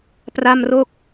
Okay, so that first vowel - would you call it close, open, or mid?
open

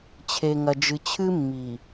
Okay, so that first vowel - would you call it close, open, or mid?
mid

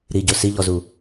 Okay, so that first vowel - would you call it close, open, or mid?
close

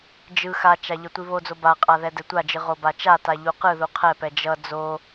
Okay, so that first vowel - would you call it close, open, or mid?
close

